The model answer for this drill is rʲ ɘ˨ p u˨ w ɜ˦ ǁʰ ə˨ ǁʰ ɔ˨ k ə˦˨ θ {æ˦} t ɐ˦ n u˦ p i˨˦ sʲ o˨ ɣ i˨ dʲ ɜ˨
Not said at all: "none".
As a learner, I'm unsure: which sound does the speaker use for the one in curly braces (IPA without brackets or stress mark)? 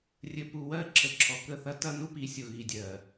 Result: ɐ˦